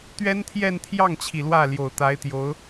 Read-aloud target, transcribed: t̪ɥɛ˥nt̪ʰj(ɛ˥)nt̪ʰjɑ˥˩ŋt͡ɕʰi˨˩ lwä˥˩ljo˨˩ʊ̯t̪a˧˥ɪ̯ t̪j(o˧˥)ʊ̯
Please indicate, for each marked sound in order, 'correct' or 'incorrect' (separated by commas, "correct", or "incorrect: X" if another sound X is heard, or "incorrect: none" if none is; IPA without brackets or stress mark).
incorrect: ɛ˥˧, correct